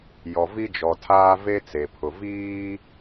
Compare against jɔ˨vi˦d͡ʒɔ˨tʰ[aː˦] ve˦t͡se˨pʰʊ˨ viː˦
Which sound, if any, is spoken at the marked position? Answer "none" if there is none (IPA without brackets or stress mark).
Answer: aː˦